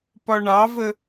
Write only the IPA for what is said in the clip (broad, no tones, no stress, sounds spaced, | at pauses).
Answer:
p ɒ ɳ ɑ v ə